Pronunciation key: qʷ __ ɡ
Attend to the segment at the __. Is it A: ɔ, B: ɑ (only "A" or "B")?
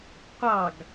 B